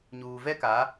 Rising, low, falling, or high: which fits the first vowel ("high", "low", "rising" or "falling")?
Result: low